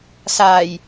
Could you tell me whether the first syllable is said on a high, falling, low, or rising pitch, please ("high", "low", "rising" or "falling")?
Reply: low